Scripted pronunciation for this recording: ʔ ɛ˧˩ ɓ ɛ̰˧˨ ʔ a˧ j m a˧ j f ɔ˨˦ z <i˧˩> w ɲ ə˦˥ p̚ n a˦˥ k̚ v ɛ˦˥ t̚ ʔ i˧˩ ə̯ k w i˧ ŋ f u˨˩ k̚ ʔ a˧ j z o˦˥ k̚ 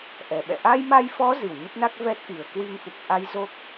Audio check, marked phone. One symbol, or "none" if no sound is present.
i˧˩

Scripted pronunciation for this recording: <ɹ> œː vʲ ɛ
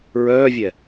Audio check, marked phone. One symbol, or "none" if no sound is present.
ɹ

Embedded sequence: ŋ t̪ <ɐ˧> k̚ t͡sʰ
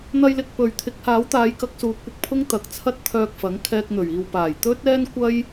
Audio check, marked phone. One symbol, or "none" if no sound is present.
ɐ˨˥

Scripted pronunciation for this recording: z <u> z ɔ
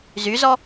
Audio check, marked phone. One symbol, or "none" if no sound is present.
y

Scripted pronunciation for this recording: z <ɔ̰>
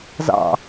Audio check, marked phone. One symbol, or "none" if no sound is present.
ɑ̰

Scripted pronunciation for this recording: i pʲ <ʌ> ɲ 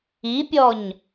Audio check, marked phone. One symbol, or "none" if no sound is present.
ɔ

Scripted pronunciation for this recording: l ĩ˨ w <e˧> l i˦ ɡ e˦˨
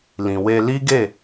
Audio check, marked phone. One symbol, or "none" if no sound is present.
e˧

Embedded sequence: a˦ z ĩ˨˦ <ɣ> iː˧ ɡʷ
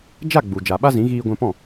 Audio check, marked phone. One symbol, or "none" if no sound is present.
ɣ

